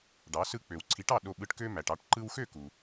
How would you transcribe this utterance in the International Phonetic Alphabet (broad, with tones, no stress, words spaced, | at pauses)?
ɖɑ˩˥ sɯ˧k͡pø˩wǀʰi˩˥ʈɑ˥˩ ɗo˧ɓɯ˧ʈkø˥ mæ˩ʈɑ˥˩ʈ ǃɯ˧wxø˥˩ku˩